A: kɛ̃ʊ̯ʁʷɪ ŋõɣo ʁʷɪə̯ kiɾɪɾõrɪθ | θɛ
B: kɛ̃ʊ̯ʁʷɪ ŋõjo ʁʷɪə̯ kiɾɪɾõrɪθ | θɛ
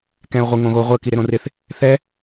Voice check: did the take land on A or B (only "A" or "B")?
A